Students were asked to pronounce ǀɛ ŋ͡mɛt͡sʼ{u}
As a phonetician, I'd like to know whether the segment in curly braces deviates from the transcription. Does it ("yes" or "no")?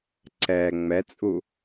no